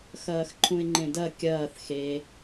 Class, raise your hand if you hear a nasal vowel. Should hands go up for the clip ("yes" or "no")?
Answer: yes